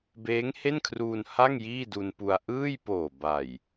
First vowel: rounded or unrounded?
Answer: unrounded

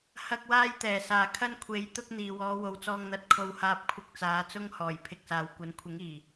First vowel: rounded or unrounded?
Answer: unrounded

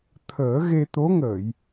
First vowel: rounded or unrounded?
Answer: unrounded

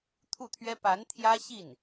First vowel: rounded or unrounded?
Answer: rounded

